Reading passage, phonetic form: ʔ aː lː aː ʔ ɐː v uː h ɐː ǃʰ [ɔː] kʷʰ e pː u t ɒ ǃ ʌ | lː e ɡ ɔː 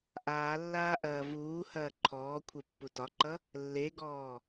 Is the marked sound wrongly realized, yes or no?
no